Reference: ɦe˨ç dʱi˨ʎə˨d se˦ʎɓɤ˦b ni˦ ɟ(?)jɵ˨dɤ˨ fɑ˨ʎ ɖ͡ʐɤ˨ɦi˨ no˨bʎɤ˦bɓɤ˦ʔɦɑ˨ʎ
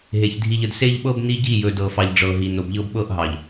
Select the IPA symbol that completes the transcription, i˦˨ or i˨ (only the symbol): i˦˨